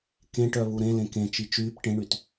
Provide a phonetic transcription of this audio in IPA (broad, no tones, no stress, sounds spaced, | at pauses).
k ẽ ʈ œ β u ɾ ẽ l ẽ k ẽ t͡ʃ i t͡ʃ yː p ʈ ẽ ɳ y t